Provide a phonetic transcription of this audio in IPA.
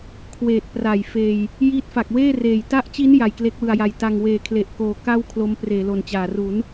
kʰ w eː˨˩ t̚ p r a˨˩ j f eː˧ j | j iː˦˥ t̚ f a˨˩ k̚ w eː˥˩ r eː˨˩ j t a˦˥ ʔ t͡ɕ i˦˥ n j a˨˩ j k l e˦˥ k̚ w ɯ˨˩ a̯ j a˨˩ j t a˧ ŋ w eː˧ kʰ l e˨˩ ʔ k oː˨˩ k a˥˩ w kʰ l o˦˥ m p r eː˩˦ l o˨˩ n t͡ɕ aː˨˩ r u˩˦ n

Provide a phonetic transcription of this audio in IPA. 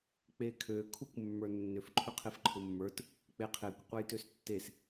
k͡p e kʰ ø kʰ u kʷ mː ə˞ nː ʏ f ǃʰ ʏ qʰ e f ǃʰ ʊ mː ə˞ t | k͡p e qʰ e kʷ qʷ e j t ø s tː e s

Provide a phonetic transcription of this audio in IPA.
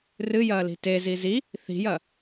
r ɨ j ɐː l i̤ t e z i z i | θ i̤ j ɐ

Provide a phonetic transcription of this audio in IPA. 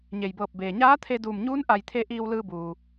ɲ e˩ j b ɤː˧˩ p̚ b eː˩ ɲ aː˧˥ t̪ʰ e˧ d uː˧˩ m ɲ uː˧˥ n ʔ a˧˩ j t̪ʰ e˧ ʔ iː˧ w l ɯː˧ b uː˩

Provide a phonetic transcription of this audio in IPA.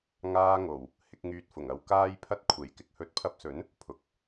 ŋ aː˧ ŋ o˨˩ w | h ɪ˨˥ k̚ ŋ yː˧ t̚ f ʊ˨˩ ŋ ɐ˨˧ w k aː˥ j pʰ ɐ˥ t̚ kʷʰ e˨˩ j k ɪ˨˥ k̚ h ɵ˨˥ t̚ pʰ ɐ˧ p̚ s ɵ˨˥ n | pʰ ʊ˨ k̚

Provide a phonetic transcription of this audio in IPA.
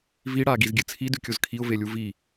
v i ɽ a ɡ i z ɡʲ ɨ t͡sʰ i d ʉ kʲ o z kʰ i ʊ̯ v e lʲ u v i

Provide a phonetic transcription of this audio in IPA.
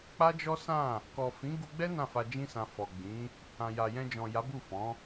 k͡p a˦ d͡ʒ ɔ˦ s ã˦˨ | k ɔ˨ f ĩ˨˦ ɡ u˧ ɡ͡b ɛ˦ n ã˦˨ f a˧ d͡ʒ ĩ˦ s ã˧ f ɔ˨ ɡ͡b ĩ˨˦ | ã˨ j a˨ j ɛ̃˧ d͡ʒ ɔ̃˨ j a˨˦ b u˦˨ f ɔ̃˨˦

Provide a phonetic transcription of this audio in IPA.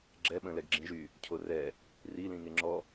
ɡ͡ǁ ɛ ɓ ə̃ l ɛ ɡ ɡ͡ǁ ĩ ʒ y | cʰ o r ɛ | r i l ĩ ŋ e ŋ͡ǁ ɔ

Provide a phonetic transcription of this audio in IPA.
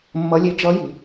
mː ʌ˦˥ lʲ e˦˥ d͡ʒ ʌ˦˥ j i˨˦

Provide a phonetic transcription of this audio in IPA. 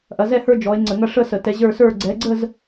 ʔ ɐ˨˦ z ɛ˥˧ h ə˞˥˧ d͡ʒ ɔ˨˦ e̯ ŋ͡ǀ ə˧˩˧ ŋ ɐ˥˧ ʂ ə˥˧ s ə˧˩˧ t ɛ˨˦ ʑ ə˞˥˧ s ə˞˥˧ ɡ͡ǀ ɛ˨˦ ɡ͡ǀ ə˥˧ z

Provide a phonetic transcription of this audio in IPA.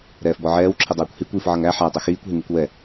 ɾ ɛː f b ɔ ʕ ɛː w ǁʰ i dˤ ɛː kʷ h i kʷ iː f ʕ ʌ ŋ æ ħ æ tˤ ʊ x iː kʷ ɦ i ŋ i kʷ w ɛ

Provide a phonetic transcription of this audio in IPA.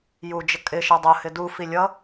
j u d͡ʒ ə kʼ ɪ ʃ ə dˤ ʊ h ɪ d u f i lʲ ʌ

